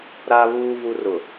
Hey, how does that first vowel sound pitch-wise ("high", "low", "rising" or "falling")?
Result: low